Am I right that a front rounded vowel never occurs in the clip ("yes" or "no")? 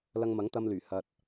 no